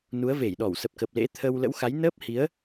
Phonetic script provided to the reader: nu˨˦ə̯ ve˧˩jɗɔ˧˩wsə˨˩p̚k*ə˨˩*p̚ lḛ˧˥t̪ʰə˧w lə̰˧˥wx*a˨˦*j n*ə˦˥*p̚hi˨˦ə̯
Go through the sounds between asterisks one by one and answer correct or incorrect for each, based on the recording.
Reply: correct, correct, incorrect: əː˦˥

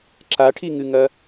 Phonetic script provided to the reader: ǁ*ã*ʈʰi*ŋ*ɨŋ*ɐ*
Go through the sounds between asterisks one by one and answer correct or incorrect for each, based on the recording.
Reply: incorrect: a, correct, correct

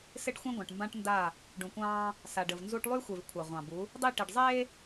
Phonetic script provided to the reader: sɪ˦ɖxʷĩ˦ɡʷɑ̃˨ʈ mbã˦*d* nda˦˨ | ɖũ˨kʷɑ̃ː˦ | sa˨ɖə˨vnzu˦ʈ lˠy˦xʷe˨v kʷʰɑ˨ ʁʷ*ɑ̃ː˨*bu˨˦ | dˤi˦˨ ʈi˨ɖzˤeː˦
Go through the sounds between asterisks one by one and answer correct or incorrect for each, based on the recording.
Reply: incorrect: ʈ, incorrect: ɑ̃˨

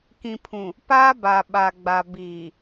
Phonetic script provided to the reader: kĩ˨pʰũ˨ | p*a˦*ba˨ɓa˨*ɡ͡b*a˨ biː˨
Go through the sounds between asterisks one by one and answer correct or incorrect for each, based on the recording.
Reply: incorrect: aː˦, correct

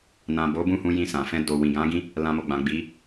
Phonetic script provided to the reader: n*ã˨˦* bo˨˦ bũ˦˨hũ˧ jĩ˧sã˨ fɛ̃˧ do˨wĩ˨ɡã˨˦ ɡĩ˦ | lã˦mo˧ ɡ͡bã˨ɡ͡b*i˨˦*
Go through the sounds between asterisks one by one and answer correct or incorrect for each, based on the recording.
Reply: incorrect: ã˨, correct

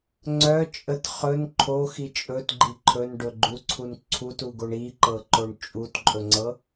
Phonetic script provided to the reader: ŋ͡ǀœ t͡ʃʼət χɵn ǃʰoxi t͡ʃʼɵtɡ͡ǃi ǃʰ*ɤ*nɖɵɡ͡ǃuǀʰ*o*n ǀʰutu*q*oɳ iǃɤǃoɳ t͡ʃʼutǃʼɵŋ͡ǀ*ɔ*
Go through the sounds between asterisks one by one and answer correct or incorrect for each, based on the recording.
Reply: incorrect: ɵ, incorrect: u, incorrect: ɡ, incorrect: ɤ

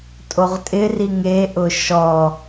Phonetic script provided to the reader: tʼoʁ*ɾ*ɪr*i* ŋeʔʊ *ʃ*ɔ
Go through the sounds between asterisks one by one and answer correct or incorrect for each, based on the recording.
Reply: incorrect: tʼ, correct, correct

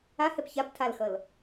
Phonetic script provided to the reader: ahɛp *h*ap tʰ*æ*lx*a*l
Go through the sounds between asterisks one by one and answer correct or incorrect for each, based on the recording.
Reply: incorrect: ç, incorrect: a, incorrect: ʌ

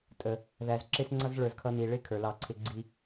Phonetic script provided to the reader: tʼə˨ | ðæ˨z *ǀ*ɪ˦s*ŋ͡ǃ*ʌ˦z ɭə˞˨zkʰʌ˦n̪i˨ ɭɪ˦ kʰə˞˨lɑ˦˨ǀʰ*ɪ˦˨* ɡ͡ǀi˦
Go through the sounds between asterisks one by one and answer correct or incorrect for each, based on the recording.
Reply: incorrect: ǁ, incorrect: ŋ͡ǀ, incorrect: ɪ˦

